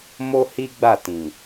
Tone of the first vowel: high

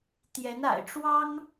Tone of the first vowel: rising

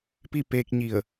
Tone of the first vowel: falling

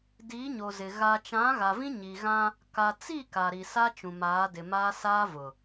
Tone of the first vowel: rising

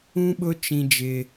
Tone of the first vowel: high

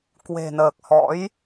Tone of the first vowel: low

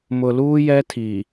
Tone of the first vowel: low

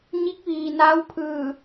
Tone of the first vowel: rising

